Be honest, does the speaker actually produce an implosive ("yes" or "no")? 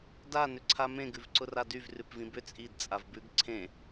no